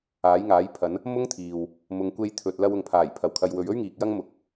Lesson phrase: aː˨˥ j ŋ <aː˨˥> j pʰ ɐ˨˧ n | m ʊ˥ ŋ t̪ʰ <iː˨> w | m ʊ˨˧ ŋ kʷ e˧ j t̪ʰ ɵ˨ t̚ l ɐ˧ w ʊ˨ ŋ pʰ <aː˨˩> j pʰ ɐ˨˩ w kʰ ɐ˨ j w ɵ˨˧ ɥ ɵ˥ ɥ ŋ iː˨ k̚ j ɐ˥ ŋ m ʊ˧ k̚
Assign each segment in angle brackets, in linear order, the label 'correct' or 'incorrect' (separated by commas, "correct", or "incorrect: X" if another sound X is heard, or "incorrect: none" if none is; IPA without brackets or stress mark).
correct, correct, correct